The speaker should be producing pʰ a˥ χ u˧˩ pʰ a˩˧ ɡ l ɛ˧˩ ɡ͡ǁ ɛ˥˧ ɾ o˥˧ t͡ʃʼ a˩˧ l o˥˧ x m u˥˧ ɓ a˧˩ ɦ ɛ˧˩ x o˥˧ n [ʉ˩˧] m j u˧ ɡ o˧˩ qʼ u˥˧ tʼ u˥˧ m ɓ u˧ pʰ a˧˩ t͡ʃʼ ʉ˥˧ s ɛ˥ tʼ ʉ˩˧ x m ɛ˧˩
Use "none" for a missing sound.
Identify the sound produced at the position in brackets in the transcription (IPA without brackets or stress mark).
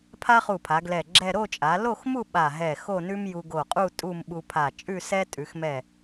ʉ˥